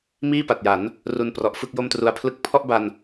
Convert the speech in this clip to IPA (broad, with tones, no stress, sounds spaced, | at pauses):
m iː˥˩ p a˨˩ t̚ j a˩˦ n | r u˧ n p r ɔ˨˩ ʔ f ɯ˥˩ k̚ j o˥˩ m t r u˧ a̯ pʰ l ɯ˥˩ k̚ pʰ ɔ˥˩ ʔ b a˧ n